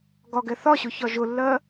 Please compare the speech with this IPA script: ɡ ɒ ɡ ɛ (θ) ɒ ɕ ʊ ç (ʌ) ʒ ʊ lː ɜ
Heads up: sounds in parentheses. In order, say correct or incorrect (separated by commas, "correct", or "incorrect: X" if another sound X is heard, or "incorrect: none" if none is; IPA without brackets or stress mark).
correct, incorrect: ɒ